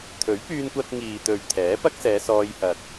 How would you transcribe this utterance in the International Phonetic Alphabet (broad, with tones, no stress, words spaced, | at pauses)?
t̪ʰɵ˨˥ɥpyː˧nkʷɐ˧t̚ ŋiː˨t̪ɵ˨ɥ t̪ʰɛː˨˥pɐ˥k̚sɛː˨˧sɔː˧j hɐ˨k̚